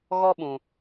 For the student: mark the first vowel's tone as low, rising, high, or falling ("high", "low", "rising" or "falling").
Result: high